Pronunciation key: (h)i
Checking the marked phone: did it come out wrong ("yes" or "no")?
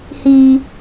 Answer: no